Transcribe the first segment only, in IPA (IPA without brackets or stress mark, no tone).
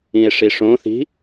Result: ĩ